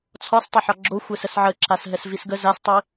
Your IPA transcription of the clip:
t͡sʰɒstˤəħɒ ɡ͡ǁo xʷɛsəsʕəǁas ɦɛsvisɡə zastˤi

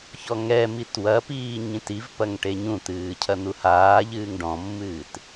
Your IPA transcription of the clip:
çɔŋɛmit wɐpiː ɲĩtivpɐŋ ʈeɲũt̪ɨː cʰɐn̪uhaːʎɨːŋ ɖɔ̃mːɨːt

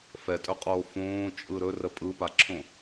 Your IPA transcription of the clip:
fɛtʼɵqʼoː fõːt͡ʃʼɯ ɾɵrə pʼɯpaǁʰõ

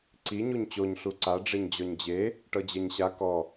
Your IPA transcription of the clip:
ǀi ɲuɲt͡ɕoɲ ɬuǀa ɖ͡ʐeɲd͡ʑɔɲd͡ʑe | ʈɤd͡ʑɛɲɕa kɔ

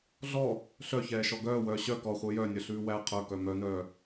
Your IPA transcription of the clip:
ɮɔ | ɬœçɛːʃɔ ɡœːwœː ɕœ kɔχʷœ jœnʲœɬʉː wæ qʰœkœ mœnœː

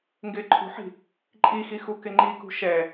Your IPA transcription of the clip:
ŋɡɪːǃʰṳħi̤ | ǃʼixi xukɪŋ͡ǃikṳ ʃɛ

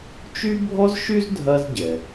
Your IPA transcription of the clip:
t͡ʃy˥bʱɔ˥zʃy˥z dʱɐ˥zɟɛ˩

